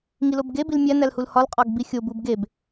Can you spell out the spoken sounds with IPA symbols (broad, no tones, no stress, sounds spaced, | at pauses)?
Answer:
ŋ i l o b ɡ e b i l mʲ æ n æ l h u l h ɒ l qʼ ɒ ɡ b i xʲ o b u b ɡ e b